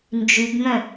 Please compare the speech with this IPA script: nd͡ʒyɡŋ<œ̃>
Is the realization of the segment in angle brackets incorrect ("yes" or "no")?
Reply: no